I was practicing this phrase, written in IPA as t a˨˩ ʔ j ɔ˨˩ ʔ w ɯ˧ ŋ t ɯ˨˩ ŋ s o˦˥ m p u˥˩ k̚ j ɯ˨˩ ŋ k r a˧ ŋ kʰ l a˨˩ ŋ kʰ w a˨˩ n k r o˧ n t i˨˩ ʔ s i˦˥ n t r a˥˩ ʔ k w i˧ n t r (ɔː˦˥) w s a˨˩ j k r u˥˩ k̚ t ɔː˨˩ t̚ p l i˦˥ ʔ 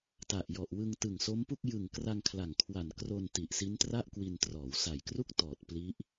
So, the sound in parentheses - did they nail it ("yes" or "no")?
no